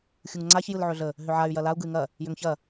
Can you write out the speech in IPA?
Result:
xʲuŋŋ͡ǀaç jɯlʕøɮə | ɦʏʕay̯ jɐlau̯ ɡɯy̯ŋɐ | jʏŋçɐ

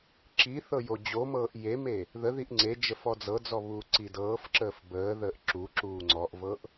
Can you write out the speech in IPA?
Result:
ǁi θɤjod͡ʑomɤːʔ jeme | ðəðiʔ ŋ͡ǀed͡ʒə fɔd͡zɤd͡zɔ βuːǀidɤːfǁəːf bəːðəːʔ ǁuǁuː ŋ͡ǀɔʔvɤʔ

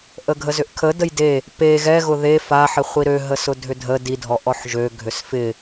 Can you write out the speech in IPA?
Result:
ʔəɡʱəzʏʔkʰə dəjde | pe ɣɛɣʊ ðe faħɪ χʷiɾøɦəsʊ dʱʏdʱə didʱɔ ʔɔħʒø ɡʱʏsfɪ

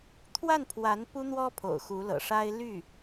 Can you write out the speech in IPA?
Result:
t̪ʰwa˥˩npʰwa˧˥n pu˥n̪wɔ˥pʰo̰˨˩ʊ̯ xu˧˥lɤ̰˨˩ʂa˥ɪ̯ ly˥˩

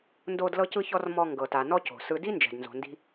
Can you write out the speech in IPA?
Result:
ndo˧d lɤ˧cɯ˧çɔ˧r mɔ˧ ŋɡɤ˩ta˩nɔ˧ co̤˩sɯ˧ di˥nd͡ʒɛ̤˩dnzo̤˩ ndi̤˧

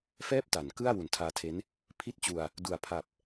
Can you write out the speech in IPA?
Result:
fɛː˥˩p̚ta˩˦nkɯ˥˩a̯ wu˩˦ntʰaː˧tʰe˦˥n | pʰi˥˩t̚t͡ɕu˧a̯ | du˨˩a̯pʰa˨˩p̚

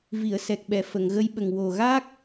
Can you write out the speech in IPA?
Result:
vi˨˩˨ə̯ sɛ˨˩k̚ɓɛ˨˩˨ fə˨˩˨ŋɣə˧˥jɓə˨˩ŋ wo˨˩ɣa˦˥k̚

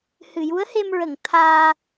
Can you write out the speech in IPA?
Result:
hɨ˨˩˨ju˧˥ə̯he˧mɹə˨˩˨ŋ t̪ʰaː˧

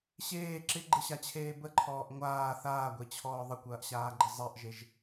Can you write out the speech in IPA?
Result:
ɕeː ǁɪɡ͡ǃɪɕat͡ɕʰeː bəǃʰɔːʔ ŋʷaː θaːɡʷet͡ɕʰɔː ðˤəkʷɐːʔɕaːɡ͡ǃɪ zˤɛʔʒeʒ

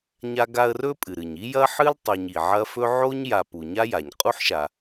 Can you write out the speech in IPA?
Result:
ɲa˦ɡa˦ə̯rɵ˥ pʼɨ˩ɾɨ˩ɲ i˥jɐ˥ħɨ˥l tˤu˨ɲi˩ʕɐ˦fɵ˥ ʕo˥ɲ ja˨pu˩ ɲa˥ja˩ɲ qʼu˥ħʃa˩

